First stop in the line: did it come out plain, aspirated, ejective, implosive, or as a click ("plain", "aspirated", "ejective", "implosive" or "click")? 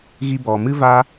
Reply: plain